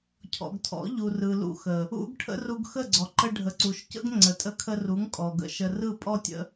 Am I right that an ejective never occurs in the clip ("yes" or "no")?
no